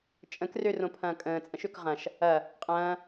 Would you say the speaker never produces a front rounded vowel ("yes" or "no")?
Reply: no